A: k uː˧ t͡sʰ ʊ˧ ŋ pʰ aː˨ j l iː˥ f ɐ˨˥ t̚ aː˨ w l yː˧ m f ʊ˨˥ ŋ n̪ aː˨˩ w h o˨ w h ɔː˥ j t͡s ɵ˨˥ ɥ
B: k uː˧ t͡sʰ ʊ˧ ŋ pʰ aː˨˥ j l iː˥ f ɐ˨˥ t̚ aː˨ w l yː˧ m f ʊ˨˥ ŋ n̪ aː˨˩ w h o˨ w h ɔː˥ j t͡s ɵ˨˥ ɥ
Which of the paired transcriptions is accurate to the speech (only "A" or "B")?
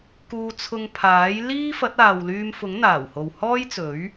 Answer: B